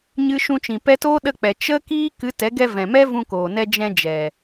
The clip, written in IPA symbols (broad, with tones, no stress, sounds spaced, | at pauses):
ɲ ɨ˧ ʃ ũ˧ t͡ʃ ĩ˨ p ɛ˧ t oː˦ ɗ ə˧ k͡p ɛ˨ t͡ʃ ə˦ k iː˦ k ɨ˨˦ t ɛ˨˦ ɡ ɛ˧ v ɛ̃˨ m ɛ˦ v ũ˧ k oː˨ n ɛ˧ d͡ʒ ɛ̃˧ d͡ʒ ɛ˨